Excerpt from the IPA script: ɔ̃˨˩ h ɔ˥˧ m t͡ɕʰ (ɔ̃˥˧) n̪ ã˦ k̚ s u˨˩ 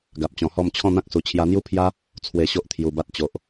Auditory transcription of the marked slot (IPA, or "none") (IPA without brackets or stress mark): ɔ̃˥˧